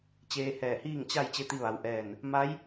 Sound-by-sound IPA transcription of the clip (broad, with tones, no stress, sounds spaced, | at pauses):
t͡ɕ eː˧ h ɛː˧˩ h iː˥˨ ŋ t͡ɕ a˥˨ j t͡ɕ e˧˥ t̪ i˧ ʋ a˩˧ w ʔ ɛː˧˩ n | m a˧˥ j